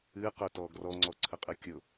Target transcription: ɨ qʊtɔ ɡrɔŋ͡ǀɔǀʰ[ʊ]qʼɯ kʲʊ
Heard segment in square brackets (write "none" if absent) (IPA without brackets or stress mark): ə